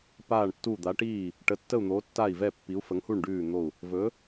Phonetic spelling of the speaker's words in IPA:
paː˦˨ɳtːu˦˨ d̪a˨˦ʈiː˦˨ | ʈə˨˦tːə˦˨u̯ n̪o˨˦tːa˦˨i̯vɛ˦˨ pːi˨˦u̯fə˨˦ŋhu˦˨ɳ ɖʉː˦˨n̪o˦˨u̯ | vɵ˨˦

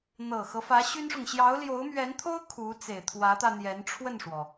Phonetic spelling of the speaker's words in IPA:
n̪ɤ˨˩xɤ˦fä˧˥ ɕy˥nʂʊ˨ŋ ɕjɑ˧˥ʊ̯ljo˧˥ʊ̯mɥɛ˧˥nt̪ʰo˥ʊ̯ kʰu˧˥ t͡se˨˩ɪ̯t̪ʰwä˧˥t̪ä˧ n̪jɛ˧˥nʈ͡ʂʰwə˥˩nʂwɔ˩

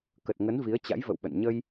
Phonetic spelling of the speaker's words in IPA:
kə˨˩t̚ŋə˨˦n vi˨˦ə̯t͡ɕa̰˧˥jvə̰˧˨wɓə̰˧˨n ɲə˧j

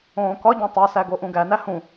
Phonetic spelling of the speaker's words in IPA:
õːkɒɟæ̃ tˤosæ ɡoʔũɡænæ hũ

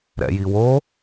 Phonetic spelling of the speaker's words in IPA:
ɾɛ̰jiwo

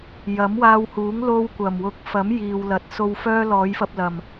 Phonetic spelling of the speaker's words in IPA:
jɐ˨˥mwaː˧whuː˨˥ŋ lo˧wkʷɐ˨˩mwʊ˨˥k̚ fɐ˨˥mjiː˨wlɐ˨t̚so˧w fœː˥lɔː˨˥jfɐ˧p̚ lɐ˨˩m

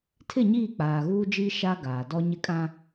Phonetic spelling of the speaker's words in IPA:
tʰɪ˦˨ɲiː˦˨ k͡paː˨ɣuː˦d͡ʒiː˦ ʃa˦ɡaː˨ dɔ˦ɲɪ˦kʼã˦

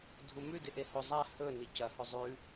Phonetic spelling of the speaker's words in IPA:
dʱumʉ deʔehozˤa hɵ nicɐ hɵzˤʉ

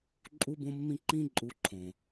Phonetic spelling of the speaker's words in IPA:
ǃʼu˧bõ˧mːĩ˧ ǃĩ˦ǃʼu˧ǃʰõ˨

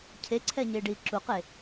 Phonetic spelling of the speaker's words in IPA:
cʰeǀʰɛɲeːɖiː ǁuqe

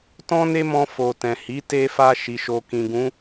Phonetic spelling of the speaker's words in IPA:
tɔ̃˦ne˦mɔ̃˧ fo˨tɛ̃˨hi˨˦ te˧fa˧ ʃi˨ʃo˨kĩ˨ɡũ˨˦

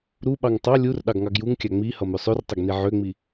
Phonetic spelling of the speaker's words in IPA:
ɾuɓɑŋ tˤɑ lʲur ɗɑɡŋɑɡjuŋkʲa ŋ͡mi hʌmøsˤørtˤʌɡ niʕøŋ͡mi

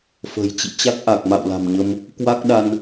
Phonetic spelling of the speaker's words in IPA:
fə̤˨˩jt͡ɕḭ˧˨ t͡ɕa˦˥k̚ʔa˨˩k̚ma̰˧˨w la̤˨˩mɲə˧m | kwa˦˥k̚ɗa˧n

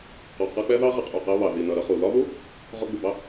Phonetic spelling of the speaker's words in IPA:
qɔ˨qʌ˧k͡pɛ˦ ðɑ˦ʁə˧qʼu˨ qɜ˧βɑ˨ ði˨nʌ˨ ɾʌ˧χu˨ lɒ˧ðu˦ | ʁɔ˧ɡ͡bu˨bɑ˦

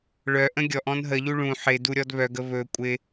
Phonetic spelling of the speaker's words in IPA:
ɭœ ʔə̃ɡʲɔʔ ɔ̃nɦəʎu ɭũ ħɪ duɾʲɔdβœɡə βɵ kʷʼɪ

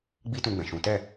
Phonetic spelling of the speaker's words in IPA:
ɡ͡bi˦tũ˧ɡ͡bɛ̃˨ʃũ˨˦ tɛ˦˨

